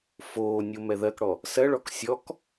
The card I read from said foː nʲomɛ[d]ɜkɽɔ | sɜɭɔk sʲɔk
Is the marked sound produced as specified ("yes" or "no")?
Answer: no